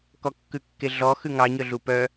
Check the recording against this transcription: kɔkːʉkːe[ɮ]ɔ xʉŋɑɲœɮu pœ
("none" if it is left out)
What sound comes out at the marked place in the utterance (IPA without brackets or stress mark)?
ɮ